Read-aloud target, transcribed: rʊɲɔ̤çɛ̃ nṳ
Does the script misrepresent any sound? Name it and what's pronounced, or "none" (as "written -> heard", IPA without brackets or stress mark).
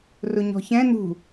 none